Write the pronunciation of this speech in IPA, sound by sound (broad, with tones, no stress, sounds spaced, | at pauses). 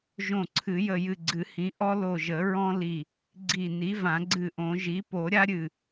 ʒ õ˧˩ ǀʰ ɨ˨˩˦ j ə˧˩ j ɨ˧˩ ɡ͡ǀ ɨ˨˩˦ h ĩ˩˥ ʔ ɔ˥ l o˧˩ ʒ ə˨˩˦ ɹ ɔ̃˥ l i˧˩ | ɡ͡ǀ i˧˩ n i˩˥ v ã˨˩˦ ɡ͡ǀ ɨ˧˩ ʔ õ˨˩˦ ʒ i˩˥ p o˨˩˦ ɾʲ a˥ ɾʲ ɨ˧˩